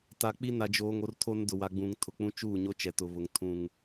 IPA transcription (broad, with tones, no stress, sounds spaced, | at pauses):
t a˨ k͡p i˦ n a˨ d͡ʒ oː˨ ŋ o˨ r tʰ o˦ n d ʊ˨ w a˨ ɡ͡b ũ˨ ŋ tʰ ʊ˨ k͡p ũ˦ t͡ʃ uː˦˨ ɲ o˦ t͡ʃ ɛ˨ t ʊ˨ β ʊ˨ ŋ tʰ ũ˦ ŋ